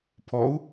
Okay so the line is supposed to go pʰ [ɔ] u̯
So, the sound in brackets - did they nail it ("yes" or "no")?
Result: yes